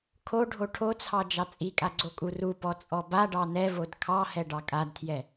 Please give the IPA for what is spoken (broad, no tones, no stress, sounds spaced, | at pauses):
kʰ o ɖʱ o ʈʰ o t͡sʰ ɑ d͡ʒ ɑ t͡sʼ i kʼ a ɡ͡ǀ o kʼ u r u p ɔ t͡sʼ ɔ b a ɖ ɑ n ɛ v o d kʰ ɑ h ɛ ɖ ɑ kʼ a d tʰ j ɛ